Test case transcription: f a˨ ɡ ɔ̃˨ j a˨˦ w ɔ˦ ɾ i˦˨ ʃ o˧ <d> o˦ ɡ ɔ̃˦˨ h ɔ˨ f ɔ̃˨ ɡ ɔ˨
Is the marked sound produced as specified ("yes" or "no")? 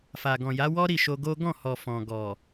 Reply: no